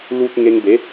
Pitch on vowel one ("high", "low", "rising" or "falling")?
high